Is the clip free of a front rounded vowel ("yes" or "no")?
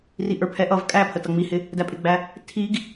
yes